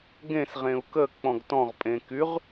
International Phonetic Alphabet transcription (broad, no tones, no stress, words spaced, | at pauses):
ɡẽs ʁẽu̯kə k͡pɔ̃ɡtɔ̃ʁ pʼẽkyʁ